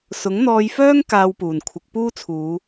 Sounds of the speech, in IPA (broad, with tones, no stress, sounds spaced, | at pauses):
s ʊ˨˥ ŋ n̪ ɔː˧ j f œː˥ ŋ k aː˧ w p uː˨˩ n kʷʰ ɪ˨˥ k̚ p uː˥ t͡sʰ uː˨˧